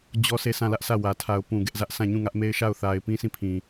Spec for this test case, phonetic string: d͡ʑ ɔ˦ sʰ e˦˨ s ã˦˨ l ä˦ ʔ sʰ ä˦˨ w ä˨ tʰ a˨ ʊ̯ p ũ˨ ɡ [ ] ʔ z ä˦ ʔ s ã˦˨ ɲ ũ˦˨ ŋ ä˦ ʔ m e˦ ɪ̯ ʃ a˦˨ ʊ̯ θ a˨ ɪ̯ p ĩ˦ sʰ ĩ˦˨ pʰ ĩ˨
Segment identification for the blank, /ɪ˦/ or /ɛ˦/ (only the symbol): ɛ˦